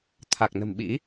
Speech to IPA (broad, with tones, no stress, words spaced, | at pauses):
t̪ʰa˨˩k̚nə̤˨˩m ɓḭ˧˥